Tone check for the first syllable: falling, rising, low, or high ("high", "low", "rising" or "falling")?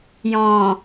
low